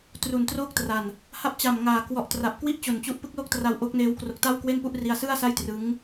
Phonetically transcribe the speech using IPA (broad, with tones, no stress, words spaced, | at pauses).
tru˨˩ntroː˥˩k̚tra˨˩n | ha˦˥p̚t͡ɕa˨˩mŋaː˨˩ kwɔ˨˩ʔtra˨˩p̚ kwi˥˩ʔt͡ɕo˨˩nt͡ɕu˦˥ʔ pɯ˦˥k̚lo˥˩k̚tra˧w ʔo˦˥k̚neː˦˥w kro˦˥k̚ ta˥˩wkwe˥˩npu˥˩ʔri˧a̯ sɯ˥˩a̯ sa˥˩jtrɯ˦˥ŋ